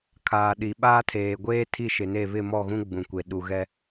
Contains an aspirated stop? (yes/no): yes